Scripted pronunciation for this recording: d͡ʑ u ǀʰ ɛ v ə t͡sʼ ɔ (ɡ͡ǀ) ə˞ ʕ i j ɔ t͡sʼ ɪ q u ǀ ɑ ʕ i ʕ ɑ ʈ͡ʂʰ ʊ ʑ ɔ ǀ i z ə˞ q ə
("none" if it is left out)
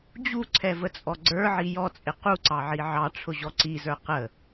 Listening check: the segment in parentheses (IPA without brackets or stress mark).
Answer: ɡ͡ǀ